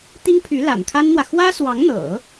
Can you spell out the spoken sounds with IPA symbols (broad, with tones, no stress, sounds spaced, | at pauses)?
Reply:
t̪ i˥ ŋ pʰ y˧˥ l a̰˨˩ n kʰ a˥ n n̪ w ä˨ x w ä˥ s w ɑ˧˥ ŋ n̪ ɤ̰˨˩˦